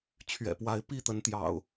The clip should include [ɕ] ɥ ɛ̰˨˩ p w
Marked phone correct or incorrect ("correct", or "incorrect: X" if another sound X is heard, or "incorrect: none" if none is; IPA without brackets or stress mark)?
incorrect: t͡ɕʰ